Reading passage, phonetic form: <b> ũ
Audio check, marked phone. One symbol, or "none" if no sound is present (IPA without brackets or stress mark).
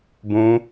b